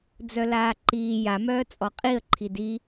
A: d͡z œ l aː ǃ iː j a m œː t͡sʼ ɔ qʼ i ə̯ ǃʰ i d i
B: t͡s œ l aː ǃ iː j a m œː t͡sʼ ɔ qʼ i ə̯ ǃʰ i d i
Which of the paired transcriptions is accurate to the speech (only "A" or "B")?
A